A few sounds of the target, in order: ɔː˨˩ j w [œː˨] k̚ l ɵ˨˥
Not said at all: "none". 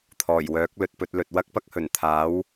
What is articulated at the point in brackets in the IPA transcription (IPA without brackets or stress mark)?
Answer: œː˨˥